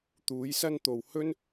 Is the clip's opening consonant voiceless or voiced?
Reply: voiceless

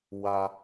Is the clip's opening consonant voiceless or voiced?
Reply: voiced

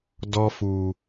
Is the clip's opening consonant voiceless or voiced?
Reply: voiced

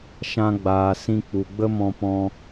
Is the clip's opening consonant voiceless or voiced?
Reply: voiceless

